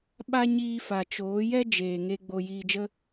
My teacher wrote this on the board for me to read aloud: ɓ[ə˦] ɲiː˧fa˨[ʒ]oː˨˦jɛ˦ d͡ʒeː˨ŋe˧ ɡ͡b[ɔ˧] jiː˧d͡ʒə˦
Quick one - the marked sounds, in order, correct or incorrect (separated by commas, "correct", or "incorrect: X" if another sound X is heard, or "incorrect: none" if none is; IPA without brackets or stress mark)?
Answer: incorrect: a˦, incorrect: t͡ʃ, incorrect: o˧